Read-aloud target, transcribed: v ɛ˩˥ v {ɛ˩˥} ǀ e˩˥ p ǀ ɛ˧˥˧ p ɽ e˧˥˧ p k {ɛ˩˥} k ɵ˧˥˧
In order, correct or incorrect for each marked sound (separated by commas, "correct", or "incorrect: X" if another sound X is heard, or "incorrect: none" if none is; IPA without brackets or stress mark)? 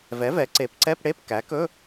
correct, incorrect: æ˩˥